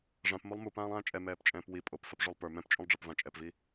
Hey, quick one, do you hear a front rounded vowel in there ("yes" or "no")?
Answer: no